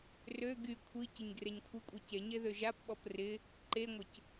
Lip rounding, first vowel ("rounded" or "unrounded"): rounded